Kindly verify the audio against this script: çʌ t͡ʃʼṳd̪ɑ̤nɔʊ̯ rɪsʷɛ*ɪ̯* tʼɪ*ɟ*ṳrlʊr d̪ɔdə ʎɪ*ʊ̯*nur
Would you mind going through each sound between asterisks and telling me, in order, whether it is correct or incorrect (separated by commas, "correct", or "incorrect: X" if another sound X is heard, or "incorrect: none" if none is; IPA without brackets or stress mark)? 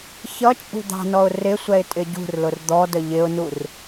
correct, correct, correct